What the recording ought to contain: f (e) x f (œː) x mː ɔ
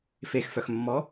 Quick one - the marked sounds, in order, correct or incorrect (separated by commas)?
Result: correct, incorrect